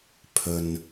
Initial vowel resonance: oral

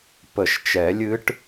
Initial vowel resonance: oral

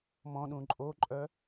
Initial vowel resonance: nasal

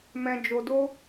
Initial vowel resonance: nasal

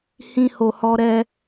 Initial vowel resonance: nasal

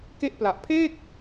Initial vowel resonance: oral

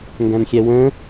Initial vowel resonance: nasal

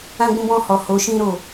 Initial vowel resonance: nasal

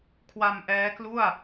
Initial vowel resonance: oral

